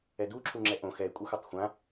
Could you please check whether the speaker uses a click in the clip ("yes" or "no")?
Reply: yes